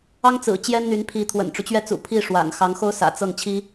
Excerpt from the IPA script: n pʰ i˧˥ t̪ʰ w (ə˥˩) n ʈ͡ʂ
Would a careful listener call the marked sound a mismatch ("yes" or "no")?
yes